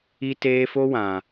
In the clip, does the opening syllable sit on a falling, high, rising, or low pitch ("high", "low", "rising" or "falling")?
high